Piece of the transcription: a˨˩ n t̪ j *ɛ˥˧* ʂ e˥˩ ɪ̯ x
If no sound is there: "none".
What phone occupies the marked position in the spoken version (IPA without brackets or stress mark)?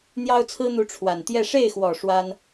ɛ˥˧